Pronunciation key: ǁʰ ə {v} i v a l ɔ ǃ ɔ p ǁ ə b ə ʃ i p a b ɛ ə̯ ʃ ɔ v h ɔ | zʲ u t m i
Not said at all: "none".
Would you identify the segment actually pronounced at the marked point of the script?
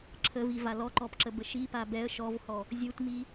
v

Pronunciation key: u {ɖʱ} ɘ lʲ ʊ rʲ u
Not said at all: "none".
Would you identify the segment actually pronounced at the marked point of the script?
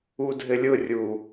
dʱ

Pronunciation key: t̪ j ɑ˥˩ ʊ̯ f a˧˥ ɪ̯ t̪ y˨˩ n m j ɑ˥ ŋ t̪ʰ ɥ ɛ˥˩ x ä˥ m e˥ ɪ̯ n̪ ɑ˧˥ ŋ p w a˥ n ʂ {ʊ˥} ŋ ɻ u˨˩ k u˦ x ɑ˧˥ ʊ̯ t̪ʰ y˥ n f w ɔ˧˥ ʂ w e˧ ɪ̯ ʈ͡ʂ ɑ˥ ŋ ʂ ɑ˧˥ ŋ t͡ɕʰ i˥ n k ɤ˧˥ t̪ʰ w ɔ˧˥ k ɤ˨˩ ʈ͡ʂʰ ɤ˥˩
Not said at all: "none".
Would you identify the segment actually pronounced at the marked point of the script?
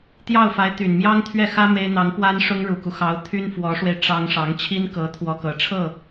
ʊ˥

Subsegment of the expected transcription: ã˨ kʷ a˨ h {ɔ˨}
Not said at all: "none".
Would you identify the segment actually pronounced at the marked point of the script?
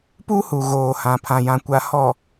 ɔ˨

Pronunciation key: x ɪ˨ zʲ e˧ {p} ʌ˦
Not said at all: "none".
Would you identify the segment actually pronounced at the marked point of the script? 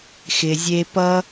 p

